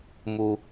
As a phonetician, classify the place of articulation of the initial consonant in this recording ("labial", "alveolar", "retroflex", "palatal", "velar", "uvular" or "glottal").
labial